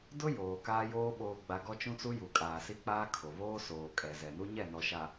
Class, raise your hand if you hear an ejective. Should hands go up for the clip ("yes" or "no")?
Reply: yes